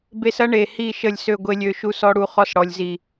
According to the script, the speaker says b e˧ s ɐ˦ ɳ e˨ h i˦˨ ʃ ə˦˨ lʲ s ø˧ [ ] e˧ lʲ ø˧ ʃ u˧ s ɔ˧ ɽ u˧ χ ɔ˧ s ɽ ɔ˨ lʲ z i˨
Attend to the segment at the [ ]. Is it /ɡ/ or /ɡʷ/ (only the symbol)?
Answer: ɡʷ